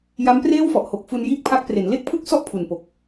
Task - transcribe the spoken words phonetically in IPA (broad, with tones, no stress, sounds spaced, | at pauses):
j a˦˥ m p r eː˥˩ w f ɔ˨˩ ʔ h o˨˩ k̚ f u˧ n j iː˥˩ k̚ pʰ a˦˥ k̚ p r e˩˦ n l e˥˩ k̚ pʰ ɯ˥˩ k̚ s ɔ˥˩ ʔ pʰ u˨˩ n p o˨˩ k̚